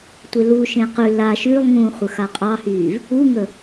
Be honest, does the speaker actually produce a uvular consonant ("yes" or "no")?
yes